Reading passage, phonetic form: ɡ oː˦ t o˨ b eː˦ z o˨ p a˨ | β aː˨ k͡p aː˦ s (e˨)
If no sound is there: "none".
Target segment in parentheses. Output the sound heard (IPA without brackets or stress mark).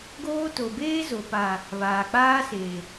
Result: e˨